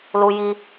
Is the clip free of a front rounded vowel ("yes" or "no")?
yes